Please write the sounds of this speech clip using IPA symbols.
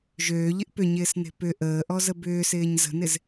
ʒ øː ʎ ɪ ʔ p ʏ ɲ ɪː s n e̤ p ʏ ʔ əː ʔ ɔ z ə b ʏː s ɪː ɲ z ə̤ n ɪ z

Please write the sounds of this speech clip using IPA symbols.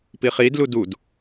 p i χ i d l u d u d

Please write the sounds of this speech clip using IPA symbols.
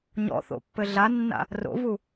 ɲ ɔ̰ θ o̰ pː ɘ ɮ a nː a̰ | r o̰ v u

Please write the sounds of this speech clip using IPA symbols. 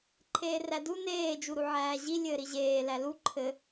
ǃʰ eː r æ d u n eː d͡ʒ u ɾ u ʕ æː ʑ i lʲ ɘː ɾ i ʑ eː l æ l u ǃʰ ɘ

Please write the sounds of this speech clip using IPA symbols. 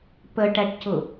p ə ʈ æ ʈ c ʊ

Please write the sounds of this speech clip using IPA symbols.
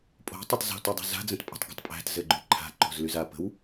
pʼ o̤ tˤ ɘ tˤ z o̤ t u dˤ o̤ z a̤ d͡z ə̃ t pʼ ə̤ tˤ ɡ o̤ tˤ pʼ æ̤ t z ɘ ɡ͡ǃ y ǃʰ a̤ ǃ o̤ z l y z a p ə̤ w

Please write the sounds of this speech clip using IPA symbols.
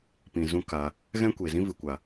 p ĩ˨ z ũ˦ k a˧ | ɣ ɛ̃˦ kʷ eː˨ z ĩ˦ v ɨ˨ kʷ a˨

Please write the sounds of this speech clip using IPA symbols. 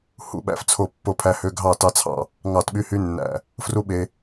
h ṵ˧ ɓ æ̰˧˩ f t͡sʰ o˧˩ pː o˧˩ pʰ æ˧ h ø˧ ɡʱ ɑ˧˩ t ɑ˧ t͡sʰ ɑ̰˧˩ | ŋ ɑ˧˩ t ɓ y˧ h y˧ nː æ̰˧˩ | f r u˧ ɓ e˧

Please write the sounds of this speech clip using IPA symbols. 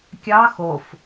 kʲ ɑ x o f

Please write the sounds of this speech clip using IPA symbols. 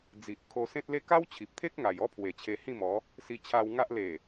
d͡z i˨ ʔ kʰ o˧ s ẽ˦ t̚ l e˦ k a˦ w t͡ɕʰ i˨ p̚ t̪ʰ e˦ k̚ ŋ a˨˩ j ɔ˦ pʰ w e˨˩ t͡ɕʰ e˧ h ĩ˥˧ m ɔ˨˦ | s i˧ t͡ɕʰ a˧ w ŋ a˦ ʔ l e˨˩

